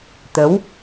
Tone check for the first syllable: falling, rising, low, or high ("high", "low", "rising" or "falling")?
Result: rising